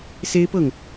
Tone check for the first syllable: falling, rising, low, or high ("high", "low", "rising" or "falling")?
high